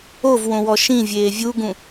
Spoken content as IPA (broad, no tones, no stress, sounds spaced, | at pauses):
o v w õ w ɔ ʃ ĩ vʲ eː vʲ u ɡ ũ